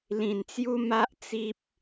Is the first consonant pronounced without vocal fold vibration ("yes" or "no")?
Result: no